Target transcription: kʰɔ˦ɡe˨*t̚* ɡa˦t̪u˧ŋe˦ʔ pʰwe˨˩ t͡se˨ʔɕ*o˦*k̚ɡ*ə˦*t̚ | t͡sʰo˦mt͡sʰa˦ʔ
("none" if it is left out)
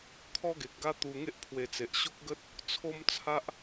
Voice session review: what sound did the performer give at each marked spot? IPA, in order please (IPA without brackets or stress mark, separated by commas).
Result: k̚, o˦, ə˦